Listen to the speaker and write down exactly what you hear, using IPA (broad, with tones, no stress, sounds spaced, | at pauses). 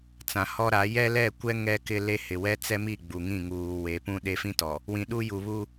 t͡s ã˨ h ɔ˦ ɾ a˨˦ j ɛ˦ l ɛ˦˨ kʷ ɛ˦ ŋ ɛ˦ k ɪ˦ l e˦ h ɪ˨ w ɛ˦ t͡s ɛ˦ m i˦˨ ɡ͡b u˨ ŋ ĩ˦˨ ŋ uː˨ w e˨˦ p ũ˦ ɗ e˦ f ĩ˦ t ɔ˨ | w ĩ˨ ɗ u˦ j u˨ β u˦